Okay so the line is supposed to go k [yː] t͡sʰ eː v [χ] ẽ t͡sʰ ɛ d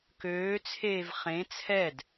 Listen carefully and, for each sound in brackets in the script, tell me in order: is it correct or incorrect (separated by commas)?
incorrect, correct